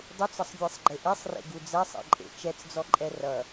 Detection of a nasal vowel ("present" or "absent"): absent